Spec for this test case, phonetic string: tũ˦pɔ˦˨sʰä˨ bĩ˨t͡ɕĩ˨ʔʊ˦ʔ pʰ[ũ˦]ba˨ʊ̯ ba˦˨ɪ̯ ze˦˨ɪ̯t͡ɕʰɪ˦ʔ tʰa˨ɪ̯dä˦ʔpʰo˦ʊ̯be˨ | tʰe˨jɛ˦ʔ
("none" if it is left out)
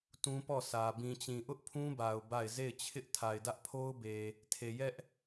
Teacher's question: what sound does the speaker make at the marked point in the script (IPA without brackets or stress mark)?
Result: ũ˦